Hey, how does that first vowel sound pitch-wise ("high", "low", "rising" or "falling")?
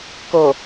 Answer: low